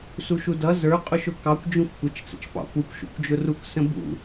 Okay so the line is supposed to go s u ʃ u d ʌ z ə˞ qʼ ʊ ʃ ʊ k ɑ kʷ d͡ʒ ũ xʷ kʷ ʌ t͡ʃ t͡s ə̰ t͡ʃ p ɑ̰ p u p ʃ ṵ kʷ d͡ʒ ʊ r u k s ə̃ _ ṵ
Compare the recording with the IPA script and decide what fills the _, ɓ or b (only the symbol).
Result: b